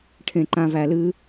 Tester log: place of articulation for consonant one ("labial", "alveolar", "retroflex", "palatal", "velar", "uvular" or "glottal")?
retroflex